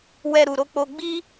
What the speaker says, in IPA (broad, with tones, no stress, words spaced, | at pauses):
wɛ˧ɾu˨ɾo˧k͡po˧ ɡ͡bi˦